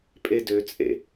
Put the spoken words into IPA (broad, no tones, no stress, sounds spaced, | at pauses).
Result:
pʼ e d ø t͡sʼ ḛ